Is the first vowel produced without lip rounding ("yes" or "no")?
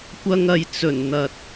yes